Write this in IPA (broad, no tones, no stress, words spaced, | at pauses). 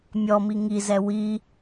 mʲɔmi ŋizɛ wi